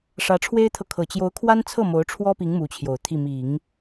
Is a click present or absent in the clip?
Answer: absent